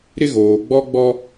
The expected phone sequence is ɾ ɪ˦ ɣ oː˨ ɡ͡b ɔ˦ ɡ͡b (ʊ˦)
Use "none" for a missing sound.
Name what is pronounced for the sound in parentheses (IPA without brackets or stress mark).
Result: ɔ˦